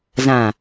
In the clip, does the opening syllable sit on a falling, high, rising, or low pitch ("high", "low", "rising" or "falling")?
low